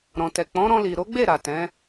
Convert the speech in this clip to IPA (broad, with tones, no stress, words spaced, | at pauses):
ɾɔ̃˨tɛ˨k͡pɔ̃˨˦ ɾɔ̃˧li˨ ɾo˨˦ɡ͡be˦˨ ɾa˨ tɛ̃˨˦